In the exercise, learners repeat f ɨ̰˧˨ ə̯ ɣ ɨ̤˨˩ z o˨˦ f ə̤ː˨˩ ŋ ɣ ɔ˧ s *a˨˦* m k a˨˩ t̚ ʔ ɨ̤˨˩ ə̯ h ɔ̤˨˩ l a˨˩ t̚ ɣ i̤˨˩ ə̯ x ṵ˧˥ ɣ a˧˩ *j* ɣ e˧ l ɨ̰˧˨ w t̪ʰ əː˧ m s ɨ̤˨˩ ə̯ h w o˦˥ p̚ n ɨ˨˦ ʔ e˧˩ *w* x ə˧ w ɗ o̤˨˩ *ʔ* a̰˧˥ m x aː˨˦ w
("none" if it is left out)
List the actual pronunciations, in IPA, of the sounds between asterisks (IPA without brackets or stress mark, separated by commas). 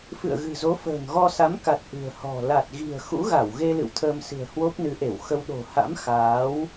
a˨˦, w, w, h